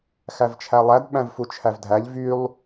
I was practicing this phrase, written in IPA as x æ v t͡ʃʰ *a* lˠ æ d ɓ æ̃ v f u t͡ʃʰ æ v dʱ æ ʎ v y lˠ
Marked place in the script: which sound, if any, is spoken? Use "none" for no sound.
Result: æ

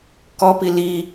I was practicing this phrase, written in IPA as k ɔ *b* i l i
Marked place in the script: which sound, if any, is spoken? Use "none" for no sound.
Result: p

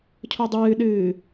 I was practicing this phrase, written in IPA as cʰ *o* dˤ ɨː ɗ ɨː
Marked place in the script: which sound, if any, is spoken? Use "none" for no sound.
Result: o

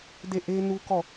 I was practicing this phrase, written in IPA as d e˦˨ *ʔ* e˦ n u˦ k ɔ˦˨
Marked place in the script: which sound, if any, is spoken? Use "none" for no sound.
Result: ʔ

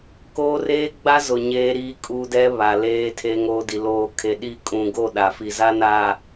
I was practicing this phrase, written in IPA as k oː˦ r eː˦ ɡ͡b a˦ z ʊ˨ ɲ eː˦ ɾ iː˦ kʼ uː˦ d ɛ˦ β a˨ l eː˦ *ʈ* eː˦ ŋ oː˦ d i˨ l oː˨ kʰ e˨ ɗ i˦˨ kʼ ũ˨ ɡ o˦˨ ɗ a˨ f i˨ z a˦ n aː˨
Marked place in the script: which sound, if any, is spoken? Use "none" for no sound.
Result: tʰ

